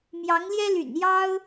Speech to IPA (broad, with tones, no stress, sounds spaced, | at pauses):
m j ɑ˧˥ ŋ l j ɛ˥ l y̰˨˩ n j ɑ˥ ʊ̯